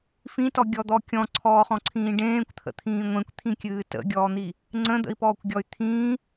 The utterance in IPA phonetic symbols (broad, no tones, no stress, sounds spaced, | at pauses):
f ĩ t ɔ ɡʲ ɔ d̪ ɔ kʲ ɔ̃ ǀʰ ɔː χ ɔ̃ ǀʰ ĩː ɖ ẽː kʷ t̪ʰ ə̰ t̪ʰ ĩː ŋʷ ẽ kʷ t̪ʰ ĩ kʲ ɨː t ə̰ ɡʲ ɔː n̪ i | ŋ͡ǀ ə̃ d̪ ə̰ i̯ p ɔː kʷ ɡʲ ɔ y̯ t̪ʰ ĩː